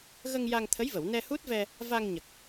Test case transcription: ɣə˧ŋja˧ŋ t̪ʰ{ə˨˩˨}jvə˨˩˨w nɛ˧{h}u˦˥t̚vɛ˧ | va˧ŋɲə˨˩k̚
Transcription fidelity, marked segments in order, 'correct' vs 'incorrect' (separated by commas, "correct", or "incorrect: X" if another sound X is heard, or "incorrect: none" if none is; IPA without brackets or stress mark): incorrect: ə˧˥, correct